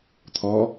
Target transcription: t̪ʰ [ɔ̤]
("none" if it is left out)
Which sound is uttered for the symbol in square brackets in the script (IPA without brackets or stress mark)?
ɔ